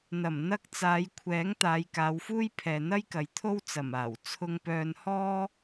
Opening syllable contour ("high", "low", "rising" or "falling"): low